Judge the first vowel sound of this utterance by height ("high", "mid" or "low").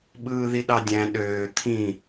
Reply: high